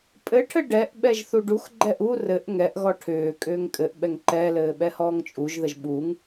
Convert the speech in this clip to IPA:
pʼɘʈʰɘ ɖɛʔ ɓɛʒθuɖuxɡ͡ǃɛʔ u rɘʔ ŋɛʔɣɔ ʈʰʏː kʼʏːŋkʼɘʔɓɛŋ ǃɛlɘː ɓɛhɔːŋt͡ʃʼuʒðəʒ ɓuŋ

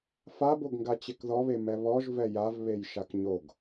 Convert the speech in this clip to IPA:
faboɡŋɡa t͡ɕekðɔβe mɛβɔʒ vɛjavβej ʃakɲoɡ

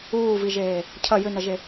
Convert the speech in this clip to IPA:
uːviʒeː | cʰɐ jʏnɐʒe

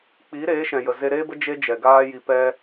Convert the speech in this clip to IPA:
k͡piː˨˦ɾeː˨˦ʃɛ̃˨ jə˨ze˧ɾeː˦bə˦ d͡ʒe˦d͡ʒɛ˨ ɡaː˦ ji˧pɛ˦

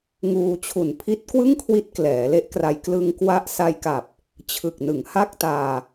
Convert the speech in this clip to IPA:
ŋuː˧t͡ɕʰu˨˩n pʰi˦˥t̚kwɯ˥˩ŋkʰwi˦˥t̚ klɛː˩˦le˦˥ʔkra˧j klɯ˧ŋkwa˦˥ʔ sa˧jka˨˩p̚ | t͡ɕʰɯ˨˩k̚nɯ˩˦ŋha˥˩k̚taː˧

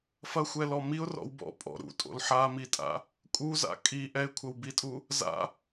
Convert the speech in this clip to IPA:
fɐxʷɛlɔ miʊ̯rɔ̰w bɔ̰ pʼɔ̰ ɾṵtʼo̰l ħamitʼa̰ | kʼuza̰ kʼi ʔɛɪ̯kʷʰɐwbitʼu | za̰

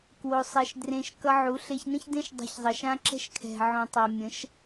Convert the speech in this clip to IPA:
kwo˧sˤɛ˧ʃdrẽ˧ʃ kʌ˧ʕu˨˦ɬe˧ç nə̃˦çdẽ˦ʃ dˤe̤˧çzˤə˨ʃã˦ ǁɛ̤˦ʃkʰɛ̤˨ ʕõ˨tˤa˨ mʲə̃˨˦ʃ

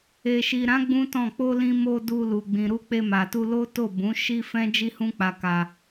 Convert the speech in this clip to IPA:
e˨ʃi˨ɾã˨˦ ɡ͡bũ˦tɔ̃˦˨ k͡po˧lĩ˧mo˧ du˧lu˨ɡ͡bĩ˨ ɾu˧k͡pe˧ma˨tu˧ lo˦to˦˨ bũ˨˦ʃi˦fɛ̃˦ d͡ʒi˦hũ˦k͡pa˧ka˧

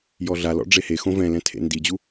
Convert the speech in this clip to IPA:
jɔɮalɔ̰ ɖ͡ʐehexõ vɛ̃lɛ̃ tʰḛndid͡ʑu

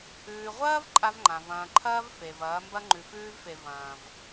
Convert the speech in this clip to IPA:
ʉː˨ʁʷɐː˦v ǃʼa˦vŋ͡ǃã˨v ɐ̃ː˨ǃʰɐː˦v fe˨vɐː˨˦ mbɐ˦ŋ͡ǃʉ˨fʉː˦vfe˨ vɐ̃ː˨v

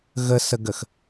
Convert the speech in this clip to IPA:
ɣəsəɡəx

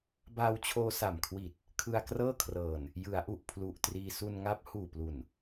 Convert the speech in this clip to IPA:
baː˧wt͡ɕʰoː˧sa˨˩mkʰwi˨˩t̚ | kʰɯ˧a̯krɤː˥˩kʰrɤː˨˩n | jɯ˩˦a̯ʔu˨˩ʔ pʰlu˨˩ʔtriː˧ su˧nŋa˦˥p̚ huː˨˩plu˨˩n

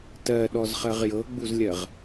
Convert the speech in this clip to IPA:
tɜɗɔzχɜʁ jɤɡ͡buzlʲɜʁ

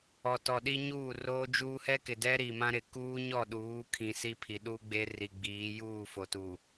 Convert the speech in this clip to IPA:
ɔ˨tɔ˨ɗi˦ ɲuː˦˨roː˦d͡ʒuː˦ hɛ˦kɪ˨dɛ˦ ɾi˨mã˦ɾɪ˨ kuː˦ɲɔ˦˨ɗuː˨˦ kʰĩ˨si˦ pʰi˨ɗu˦ɡ͡be˦ ri˨ɡ͡biː˨˦ juː˦˨fo˨tu˨

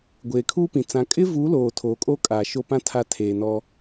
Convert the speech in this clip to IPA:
ɡʷeː˨kʰuː˦pĩ˨ t͡sã˨ kʼɪ˦vu˨˦loː˨ tʰoː˨kʼoː˦ kʼaː˨ʃo˦pã˦ tʰa˦tʰeː˨nɔ˦

